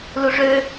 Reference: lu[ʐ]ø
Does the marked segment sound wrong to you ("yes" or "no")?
no